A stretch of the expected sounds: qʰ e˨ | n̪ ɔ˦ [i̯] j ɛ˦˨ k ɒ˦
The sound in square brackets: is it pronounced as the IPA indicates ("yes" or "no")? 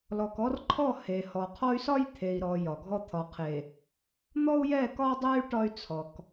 no